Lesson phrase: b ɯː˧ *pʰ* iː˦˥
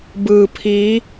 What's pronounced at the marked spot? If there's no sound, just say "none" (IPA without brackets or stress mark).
pʰ